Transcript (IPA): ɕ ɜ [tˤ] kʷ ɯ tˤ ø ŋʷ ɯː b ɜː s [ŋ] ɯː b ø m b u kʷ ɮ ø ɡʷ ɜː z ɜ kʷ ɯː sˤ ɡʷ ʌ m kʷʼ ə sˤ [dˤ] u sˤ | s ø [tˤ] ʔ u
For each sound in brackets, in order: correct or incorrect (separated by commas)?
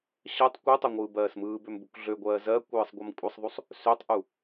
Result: correct, incorrect, incorrect, correct